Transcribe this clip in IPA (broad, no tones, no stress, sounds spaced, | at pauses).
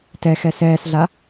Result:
t ɛ x ɛ s ɛː s ɮ a